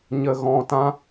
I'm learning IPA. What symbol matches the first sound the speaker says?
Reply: ɲ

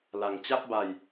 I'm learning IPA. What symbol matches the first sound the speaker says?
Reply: l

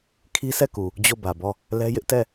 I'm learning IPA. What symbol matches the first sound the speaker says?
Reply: kʰ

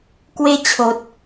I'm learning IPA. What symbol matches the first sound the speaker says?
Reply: k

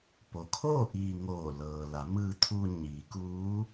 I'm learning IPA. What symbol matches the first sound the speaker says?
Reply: p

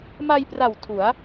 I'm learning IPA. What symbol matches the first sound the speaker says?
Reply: m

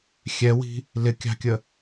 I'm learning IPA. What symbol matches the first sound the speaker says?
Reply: xʲ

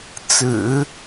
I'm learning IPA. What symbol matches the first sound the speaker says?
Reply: t͡s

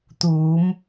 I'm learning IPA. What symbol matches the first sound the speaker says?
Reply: t̪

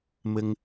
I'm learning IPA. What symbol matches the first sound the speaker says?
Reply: m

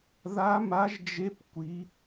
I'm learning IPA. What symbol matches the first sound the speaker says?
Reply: ð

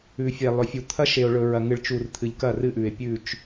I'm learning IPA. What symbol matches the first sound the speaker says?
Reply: ʉ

